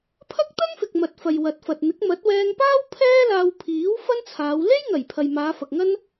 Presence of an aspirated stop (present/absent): present